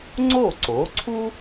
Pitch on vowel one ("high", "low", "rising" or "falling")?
falling